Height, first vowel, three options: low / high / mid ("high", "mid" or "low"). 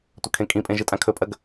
low